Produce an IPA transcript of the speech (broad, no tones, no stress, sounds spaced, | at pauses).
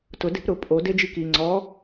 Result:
t ʊ d e̤ p ɾ ʊ pʼ o d e d͡ʒ i k i ŋ͡ǀ ɔ